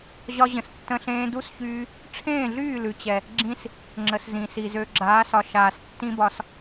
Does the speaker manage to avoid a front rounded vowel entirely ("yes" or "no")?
no